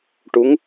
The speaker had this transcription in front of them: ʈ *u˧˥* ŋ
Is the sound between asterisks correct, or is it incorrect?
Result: correct